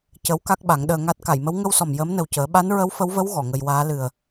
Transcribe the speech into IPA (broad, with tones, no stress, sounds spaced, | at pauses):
c ə˧˥ w k a˦˥ k̚ ɓ a˨˩˦ ŋ ɗ əː˧ ŋ a˦˥ t̚ k a˨˩˨ j m ə˧˥ w ŋ ə˧ w s ɔ˨˩ m j əː˧˥ m n ə˨˩ w c əː˨˩˦ ɓ a˧˥ n ɹ ə˧˥ w f ə˧˥ w v ə˧˥ w ɣ ɔ˨˩˨ ŋ ə˧ j w aː˧˥ l ɨ˨˩ ə̯